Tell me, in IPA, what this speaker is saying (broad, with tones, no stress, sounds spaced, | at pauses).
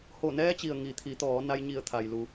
h o˧˩ n ɛː˧˥ t͡ɕ i˩ ə̯ ŋ i˩ t̪ʰ i˩˧ t̪ ɔː˩˧ n a˧ j ɲ i˧˩ ə̯ t̪ʰ a˩ j l u˩˧